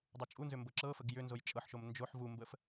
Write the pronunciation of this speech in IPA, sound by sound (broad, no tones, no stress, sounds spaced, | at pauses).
dˤ u t͡ʃʼ u n z ʏ m b ɤ ǁ ɤ f ə ɡ j ʏ n z o j t͡ʃʼ ɤ ħ ʃ o m n d͡ʒ o ħ v u m b ə f